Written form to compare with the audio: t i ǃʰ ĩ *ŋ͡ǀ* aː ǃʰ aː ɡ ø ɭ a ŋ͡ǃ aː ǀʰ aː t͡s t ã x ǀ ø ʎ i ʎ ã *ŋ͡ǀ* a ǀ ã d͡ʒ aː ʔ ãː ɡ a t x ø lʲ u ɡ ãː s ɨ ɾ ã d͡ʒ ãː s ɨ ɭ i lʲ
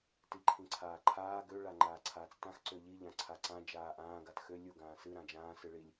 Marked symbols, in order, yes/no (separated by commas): no, no